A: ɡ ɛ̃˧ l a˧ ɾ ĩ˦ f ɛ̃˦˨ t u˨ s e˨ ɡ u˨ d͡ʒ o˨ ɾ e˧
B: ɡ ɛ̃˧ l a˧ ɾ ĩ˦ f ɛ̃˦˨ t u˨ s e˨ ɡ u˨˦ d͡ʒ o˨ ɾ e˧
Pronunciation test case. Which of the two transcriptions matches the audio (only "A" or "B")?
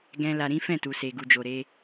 A